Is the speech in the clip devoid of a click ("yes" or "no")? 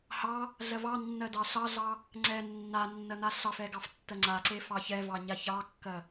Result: no